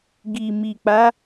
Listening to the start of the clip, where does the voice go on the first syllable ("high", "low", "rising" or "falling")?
low